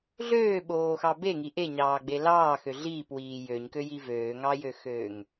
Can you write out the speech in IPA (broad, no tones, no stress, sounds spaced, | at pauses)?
ɮ øː ɓ oː x ɑ b e ŋ i ʔ e ɲ ɑː ɡ͡b e l ɑː x ø ɮ iː p w iː j ø ɲ k ø j i v øː ŋ ɑ j ø x øː ŋ